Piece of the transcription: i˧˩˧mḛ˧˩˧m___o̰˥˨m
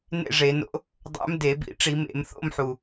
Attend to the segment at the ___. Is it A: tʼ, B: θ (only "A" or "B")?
B